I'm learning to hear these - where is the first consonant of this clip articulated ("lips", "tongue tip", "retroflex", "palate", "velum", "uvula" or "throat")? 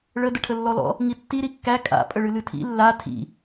retroflex